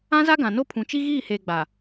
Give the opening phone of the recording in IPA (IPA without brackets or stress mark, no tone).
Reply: ã